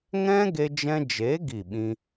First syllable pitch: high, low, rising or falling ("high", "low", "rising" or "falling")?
high